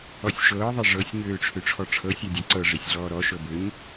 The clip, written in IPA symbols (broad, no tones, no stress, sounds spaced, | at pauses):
ɔ sʲ ʃ ɤː ðˤ e ʐ ɤ sʲ ɲ øː ʈ͡ʂʰ ø ʈ͡ʂʰ ɔ ʈ͡ʂʰ ɤ sʲ a dʲ a ǀ ɤ ʐ e sʲ ɮ ɔː ɾ ɔ ʃ ɤ b ø ɲ